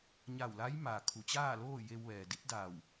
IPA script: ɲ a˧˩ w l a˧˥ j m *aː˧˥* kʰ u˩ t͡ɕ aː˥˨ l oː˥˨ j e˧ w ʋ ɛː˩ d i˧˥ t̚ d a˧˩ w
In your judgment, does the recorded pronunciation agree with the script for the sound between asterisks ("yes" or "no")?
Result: no